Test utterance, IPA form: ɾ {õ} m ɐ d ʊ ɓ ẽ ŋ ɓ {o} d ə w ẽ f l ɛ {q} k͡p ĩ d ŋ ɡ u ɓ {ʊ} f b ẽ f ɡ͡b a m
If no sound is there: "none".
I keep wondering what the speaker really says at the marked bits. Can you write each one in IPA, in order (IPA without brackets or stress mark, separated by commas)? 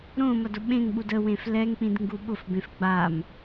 õ, u, ŋ, ʊ